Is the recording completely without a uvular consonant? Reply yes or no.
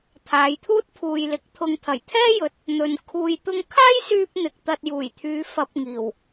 yes